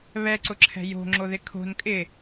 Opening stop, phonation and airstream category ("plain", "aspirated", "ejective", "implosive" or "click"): click